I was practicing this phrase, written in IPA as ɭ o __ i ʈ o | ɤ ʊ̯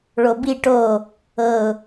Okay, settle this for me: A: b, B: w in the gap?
A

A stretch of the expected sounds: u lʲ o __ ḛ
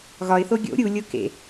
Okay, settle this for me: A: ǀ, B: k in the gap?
B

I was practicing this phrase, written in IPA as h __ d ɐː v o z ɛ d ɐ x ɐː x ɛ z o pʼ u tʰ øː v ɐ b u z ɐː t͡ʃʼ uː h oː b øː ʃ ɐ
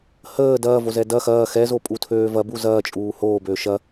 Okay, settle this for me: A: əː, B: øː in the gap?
A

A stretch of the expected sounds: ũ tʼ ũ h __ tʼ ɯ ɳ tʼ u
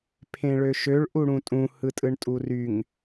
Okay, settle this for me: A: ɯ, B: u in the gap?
A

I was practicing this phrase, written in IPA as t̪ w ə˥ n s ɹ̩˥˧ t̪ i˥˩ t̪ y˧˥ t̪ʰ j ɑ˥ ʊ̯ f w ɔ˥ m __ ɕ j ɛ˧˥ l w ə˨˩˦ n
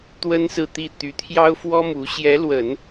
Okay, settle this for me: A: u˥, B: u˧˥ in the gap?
B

